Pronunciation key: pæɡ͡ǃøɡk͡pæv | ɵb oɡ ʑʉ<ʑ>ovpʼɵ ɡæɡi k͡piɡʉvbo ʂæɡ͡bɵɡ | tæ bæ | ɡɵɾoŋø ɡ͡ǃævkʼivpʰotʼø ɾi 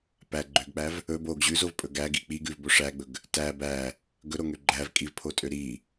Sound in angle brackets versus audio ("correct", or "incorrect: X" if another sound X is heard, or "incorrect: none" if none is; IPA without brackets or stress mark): incorrect: z